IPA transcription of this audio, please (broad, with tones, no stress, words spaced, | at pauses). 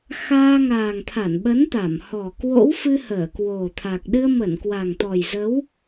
xaː˧ŋaː˨˩ŋ t̪ʰa˧˩nɓə˨˦nt̪a˧˩mhɔ˨˩ kwo̰˧˥wfɨ˧ həː˧˩kwo˨˩t̪ʰa˨˩k̚ ɗɨ˧ə̯mə˧˩n kwa˨˩ŋt̪ɔ˨˩jzə˨˦w